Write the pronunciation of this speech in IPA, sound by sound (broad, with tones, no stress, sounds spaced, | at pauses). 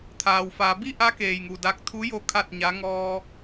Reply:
t̪ʰ aː˩ w f a˩˧ b i˥˨ ʔ a˧˥ k eː˧˩ j ŋ u˧˩ d a˧˥ k̚ t̪ʰ u˧˥ j o˥˨ kʰ a˥˨ t̚ ɲ a˧˥ ŋ ɔː˧